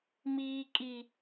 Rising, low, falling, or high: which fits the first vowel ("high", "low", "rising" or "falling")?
low